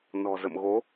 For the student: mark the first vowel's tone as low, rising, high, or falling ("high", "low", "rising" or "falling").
low